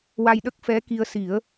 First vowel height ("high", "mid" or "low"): low